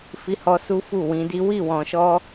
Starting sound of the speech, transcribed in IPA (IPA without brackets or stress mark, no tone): f